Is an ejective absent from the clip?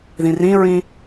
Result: yes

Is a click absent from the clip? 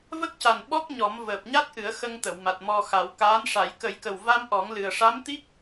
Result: yes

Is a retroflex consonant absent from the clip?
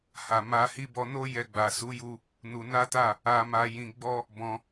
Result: yes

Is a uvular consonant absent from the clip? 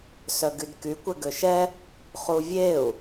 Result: no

